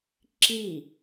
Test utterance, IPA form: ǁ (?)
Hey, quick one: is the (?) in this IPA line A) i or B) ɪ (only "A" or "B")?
A